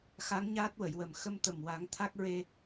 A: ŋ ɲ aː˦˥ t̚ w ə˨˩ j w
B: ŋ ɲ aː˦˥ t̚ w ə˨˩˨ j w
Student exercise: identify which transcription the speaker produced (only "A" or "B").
B